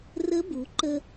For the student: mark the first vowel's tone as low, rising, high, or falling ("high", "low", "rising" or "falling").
rising